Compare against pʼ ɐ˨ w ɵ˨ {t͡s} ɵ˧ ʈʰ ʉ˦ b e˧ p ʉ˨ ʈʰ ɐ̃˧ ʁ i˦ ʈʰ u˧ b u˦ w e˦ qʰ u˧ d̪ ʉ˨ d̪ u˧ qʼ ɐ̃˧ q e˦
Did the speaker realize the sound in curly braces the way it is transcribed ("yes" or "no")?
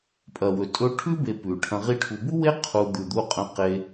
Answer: no